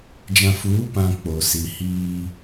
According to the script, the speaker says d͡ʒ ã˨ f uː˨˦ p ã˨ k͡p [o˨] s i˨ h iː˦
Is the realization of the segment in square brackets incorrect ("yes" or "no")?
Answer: no